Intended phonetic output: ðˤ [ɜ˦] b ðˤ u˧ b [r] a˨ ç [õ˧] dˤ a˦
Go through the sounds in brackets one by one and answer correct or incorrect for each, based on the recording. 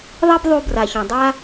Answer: correct, correct, incorrect: õ˨

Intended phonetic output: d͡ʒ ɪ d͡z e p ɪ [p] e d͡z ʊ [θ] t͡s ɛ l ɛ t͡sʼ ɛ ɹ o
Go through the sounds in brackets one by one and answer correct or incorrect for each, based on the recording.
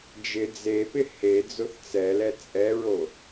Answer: incorrect: h, correct

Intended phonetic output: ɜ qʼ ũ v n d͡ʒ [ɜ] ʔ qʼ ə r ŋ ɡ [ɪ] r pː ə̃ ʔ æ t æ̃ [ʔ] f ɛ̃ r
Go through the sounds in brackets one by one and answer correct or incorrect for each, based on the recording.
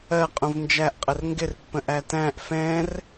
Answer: incorrect: æ, correct, correct

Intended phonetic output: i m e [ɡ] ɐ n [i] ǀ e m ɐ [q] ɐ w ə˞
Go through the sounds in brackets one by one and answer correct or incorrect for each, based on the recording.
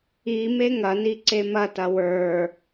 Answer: incorrect: ŋ, correct, incorrect: t

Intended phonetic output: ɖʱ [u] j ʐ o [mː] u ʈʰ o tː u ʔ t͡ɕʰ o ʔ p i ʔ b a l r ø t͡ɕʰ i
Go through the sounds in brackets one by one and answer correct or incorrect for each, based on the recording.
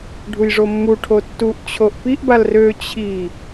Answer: correct, correct

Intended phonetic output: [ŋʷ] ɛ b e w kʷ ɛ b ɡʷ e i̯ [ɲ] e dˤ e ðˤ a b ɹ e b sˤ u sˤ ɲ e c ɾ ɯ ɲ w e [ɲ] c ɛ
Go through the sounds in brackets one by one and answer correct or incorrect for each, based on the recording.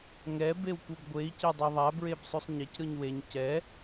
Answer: incorrect: ŋ, incorrect: c, correct

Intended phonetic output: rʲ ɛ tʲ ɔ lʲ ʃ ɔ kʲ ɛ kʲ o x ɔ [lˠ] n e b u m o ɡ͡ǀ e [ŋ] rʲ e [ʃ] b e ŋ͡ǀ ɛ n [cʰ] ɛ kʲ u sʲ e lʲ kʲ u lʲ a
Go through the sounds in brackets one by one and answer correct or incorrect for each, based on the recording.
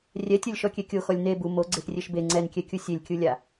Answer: incorrect: lʲ, incorrect: x, correct, incorrect: kʲ

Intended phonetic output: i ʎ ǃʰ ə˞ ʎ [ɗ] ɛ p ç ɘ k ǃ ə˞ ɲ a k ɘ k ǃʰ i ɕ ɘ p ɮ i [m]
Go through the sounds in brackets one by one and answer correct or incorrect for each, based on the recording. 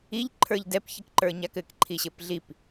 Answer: incorrect: d, incorrect: p

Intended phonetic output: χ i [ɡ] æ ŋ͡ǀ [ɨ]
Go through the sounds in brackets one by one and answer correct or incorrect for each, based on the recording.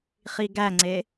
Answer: correct, incorrect: e

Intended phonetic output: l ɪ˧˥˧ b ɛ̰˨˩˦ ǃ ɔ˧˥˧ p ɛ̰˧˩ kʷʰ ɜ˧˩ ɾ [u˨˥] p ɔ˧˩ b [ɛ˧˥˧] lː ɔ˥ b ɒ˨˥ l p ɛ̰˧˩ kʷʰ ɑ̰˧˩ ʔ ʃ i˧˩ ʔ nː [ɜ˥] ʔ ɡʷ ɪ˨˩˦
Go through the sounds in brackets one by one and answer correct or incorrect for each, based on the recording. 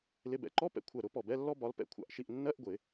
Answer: incorrect: ʊ˨˥, correct, incorrect: ɜ˧˥˧

